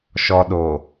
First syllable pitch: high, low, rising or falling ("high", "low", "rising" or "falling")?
low